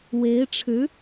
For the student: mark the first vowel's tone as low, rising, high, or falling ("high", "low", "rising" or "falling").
rising